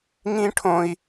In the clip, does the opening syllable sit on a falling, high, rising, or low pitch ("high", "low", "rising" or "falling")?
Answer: high